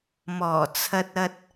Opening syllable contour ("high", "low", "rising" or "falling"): low